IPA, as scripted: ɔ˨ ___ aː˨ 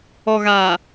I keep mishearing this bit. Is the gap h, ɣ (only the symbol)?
ɣ